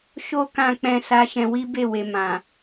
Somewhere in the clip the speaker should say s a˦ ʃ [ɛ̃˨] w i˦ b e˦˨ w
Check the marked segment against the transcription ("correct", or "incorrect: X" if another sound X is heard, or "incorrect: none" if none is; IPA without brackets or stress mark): incorrect: ɛ̃˧